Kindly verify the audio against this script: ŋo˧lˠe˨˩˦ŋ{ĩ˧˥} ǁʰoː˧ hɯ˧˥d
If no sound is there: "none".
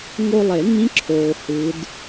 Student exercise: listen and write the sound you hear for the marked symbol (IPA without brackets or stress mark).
ĩ˧˥